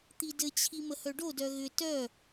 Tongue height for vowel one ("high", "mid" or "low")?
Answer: high